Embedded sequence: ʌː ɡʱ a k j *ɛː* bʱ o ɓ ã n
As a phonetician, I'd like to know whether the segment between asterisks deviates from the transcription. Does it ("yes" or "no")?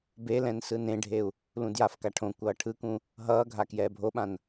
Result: no